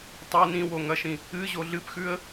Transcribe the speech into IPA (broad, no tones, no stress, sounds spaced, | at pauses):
tˤ o n ĩ w o ŋ ɐ ʃ ĩ | ɨ ʑ o ɮ ɨ p x ʉ ə̯